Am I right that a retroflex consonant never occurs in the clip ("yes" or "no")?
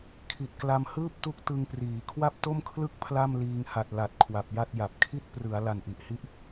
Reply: yes